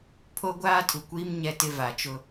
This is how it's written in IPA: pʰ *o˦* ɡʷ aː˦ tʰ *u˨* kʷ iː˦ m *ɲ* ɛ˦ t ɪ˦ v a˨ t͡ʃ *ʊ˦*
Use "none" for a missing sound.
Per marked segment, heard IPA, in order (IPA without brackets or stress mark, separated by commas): o˦, u˨, ɲ, ʊ˦